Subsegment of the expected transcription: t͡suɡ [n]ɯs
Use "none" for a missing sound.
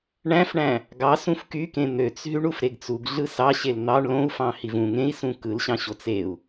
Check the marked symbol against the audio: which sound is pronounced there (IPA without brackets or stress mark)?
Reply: ɮ